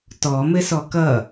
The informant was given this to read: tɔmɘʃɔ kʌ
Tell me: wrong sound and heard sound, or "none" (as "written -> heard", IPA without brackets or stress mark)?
ʃ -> s